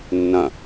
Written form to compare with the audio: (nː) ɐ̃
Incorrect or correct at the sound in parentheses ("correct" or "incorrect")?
correct